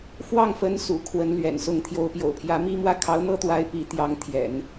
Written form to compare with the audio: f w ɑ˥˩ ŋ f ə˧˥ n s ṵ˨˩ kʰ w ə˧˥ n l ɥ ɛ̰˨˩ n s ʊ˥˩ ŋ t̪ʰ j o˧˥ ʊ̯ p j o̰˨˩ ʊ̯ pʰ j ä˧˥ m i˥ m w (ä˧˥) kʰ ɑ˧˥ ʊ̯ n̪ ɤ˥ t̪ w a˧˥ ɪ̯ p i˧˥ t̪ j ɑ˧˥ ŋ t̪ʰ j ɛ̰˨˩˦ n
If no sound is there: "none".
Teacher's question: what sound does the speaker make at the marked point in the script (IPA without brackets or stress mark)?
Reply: ä˥